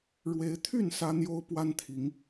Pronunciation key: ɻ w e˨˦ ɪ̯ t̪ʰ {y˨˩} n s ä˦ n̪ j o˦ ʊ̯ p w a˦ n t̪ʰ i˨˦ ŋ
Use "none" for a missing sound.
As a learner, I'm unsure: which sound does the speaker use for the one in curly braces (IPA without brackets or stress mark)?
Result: y˥˨